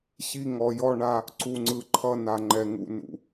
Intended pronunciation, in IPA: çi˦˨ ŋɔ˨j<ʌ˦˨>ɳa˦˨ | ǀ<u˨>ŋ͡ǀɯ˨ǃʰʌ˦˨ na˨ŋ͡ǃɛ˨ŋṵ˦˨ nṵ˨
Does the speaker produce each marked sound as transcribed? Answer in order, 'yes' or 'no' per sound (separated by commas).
no, yes